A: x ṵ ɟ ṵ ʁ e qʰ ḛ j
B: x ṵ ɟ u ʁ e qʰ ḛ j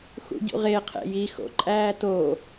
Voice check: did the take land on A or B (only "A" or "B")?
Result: A